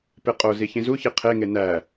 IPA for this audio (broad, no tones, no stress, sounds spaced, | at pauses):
p e qʼ o z i ç ĩ z u ç i qʰ e ŋ e n æ